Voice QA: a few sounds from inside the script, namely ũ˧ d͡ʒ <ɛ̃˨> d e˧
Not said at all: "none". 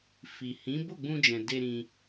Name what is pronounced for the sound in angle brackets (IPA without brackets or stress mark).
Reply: ɛ̃˨